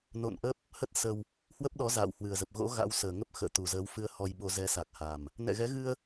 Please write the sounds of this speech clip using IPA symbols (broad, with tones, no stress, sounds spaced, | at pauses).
n o̰˧˨ n ʔ ə˦˥ p̚ | h ə˦˥ t̚ s ə˧ w | h w ə˦˥ p̚ ɗ ɔ˨˦ z a̰ː˧˨ w h w ɨ˨˩ ə̯ z ə˨˩ p̚ ɣ o̰˧˥ ɣ a̰˧˥ w s əː˨˩ ŋ ə˦˥ p̚ x ə̰ː˧˨ t̪ u˨˩ z əː˨˦ w f ɨ˧ ə̯ h ɔ˧ j ɓ o˧ z ɛ˨˦ s a˨˩ k̚ h a˨˩ m | n ɛ̰˧˨ ɣ ɛ˨˦ ɣ ɨ˧ ə̯